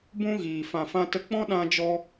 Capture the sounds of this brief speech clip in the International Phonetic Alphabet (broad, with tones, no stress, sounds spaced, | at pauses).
b ũ˦ ɣ iː˨ f ã˨ f ã˧ t ə˧ k͡p ɔ̃˦ ɗ ã˧ d͡ʒ ɔ˧